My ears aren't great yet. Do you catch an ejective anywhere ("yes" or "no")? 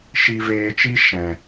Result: no